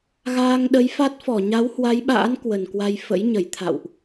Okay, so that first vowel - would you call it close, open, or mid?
open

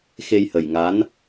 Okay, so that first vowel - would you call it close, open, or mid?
mid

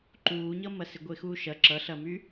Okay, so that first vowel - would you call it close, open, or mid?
close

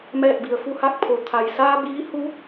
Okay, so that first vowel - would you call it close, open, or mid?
mid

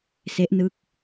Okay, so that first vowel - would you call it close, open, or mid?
mid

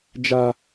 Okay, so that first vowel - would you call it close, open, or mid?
open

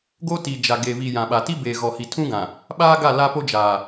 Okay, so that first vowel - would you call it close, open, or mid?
mid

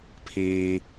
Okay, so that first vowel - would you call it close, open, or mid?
close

